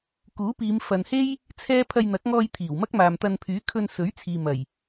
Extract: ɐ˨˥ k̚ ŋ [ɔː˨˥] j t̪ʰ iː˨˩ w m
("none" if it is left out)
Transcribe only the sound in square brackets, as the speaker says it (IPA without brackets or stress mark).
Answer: ɔː˧